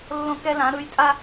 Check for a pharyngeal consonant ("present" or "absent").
absent